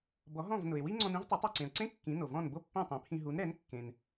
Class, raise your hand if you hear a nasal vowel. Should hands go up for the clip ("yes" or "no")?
yes